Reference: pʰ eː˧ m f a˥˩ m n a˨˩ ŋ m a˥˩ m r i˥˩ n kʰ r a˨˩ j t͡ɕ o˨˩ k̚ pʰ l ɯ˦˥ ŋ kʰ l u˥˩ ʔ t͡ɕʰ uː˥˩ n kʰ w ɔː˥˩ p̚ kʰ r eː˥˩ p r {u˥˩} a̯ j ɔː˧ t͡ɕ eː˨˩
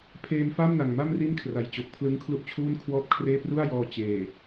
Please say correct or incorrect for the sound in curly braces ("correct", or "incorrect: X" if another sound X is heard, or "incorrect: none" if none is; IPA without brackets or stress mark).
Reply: correct